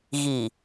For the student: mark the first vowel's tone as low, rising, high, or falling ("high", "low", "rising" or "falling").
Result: low